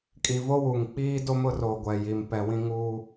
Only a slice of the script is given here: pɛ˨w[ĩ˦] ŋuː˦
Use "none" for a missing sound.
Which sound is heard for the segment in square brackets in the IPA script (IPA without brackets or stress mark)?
ĩ˦